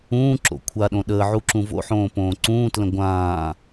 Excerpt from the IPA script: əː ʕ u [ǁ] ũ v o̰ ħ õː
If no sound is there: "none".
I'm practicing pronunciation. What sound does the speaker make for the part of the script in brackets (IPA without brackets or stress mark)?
ǁ